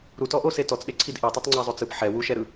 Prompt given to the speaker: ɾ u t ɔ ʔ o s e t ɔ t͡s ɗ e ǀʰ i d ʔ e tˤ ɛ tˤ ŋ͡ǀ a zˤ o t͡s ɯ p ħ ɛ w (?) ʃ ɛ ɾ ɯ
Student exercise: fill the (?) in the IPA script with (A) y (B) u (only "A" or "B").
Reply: B